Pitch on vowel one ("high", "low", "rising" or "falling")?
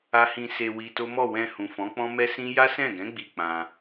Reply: high